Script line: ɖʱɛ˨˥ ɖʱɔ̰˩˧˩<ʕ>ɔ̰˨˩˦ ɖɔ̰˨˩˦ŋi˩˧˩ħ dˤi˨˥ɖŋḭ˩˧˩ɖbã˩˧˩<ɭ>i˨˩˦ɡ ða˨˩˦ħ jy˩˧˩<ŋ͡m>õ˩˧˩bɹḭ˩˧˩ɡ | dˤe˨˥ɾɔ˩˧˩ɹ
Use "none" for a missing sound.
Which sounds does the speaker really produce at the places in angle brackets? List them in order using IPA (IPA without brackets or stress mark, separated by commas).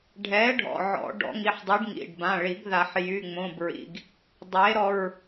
ʕ, ɭ, ŋ͡m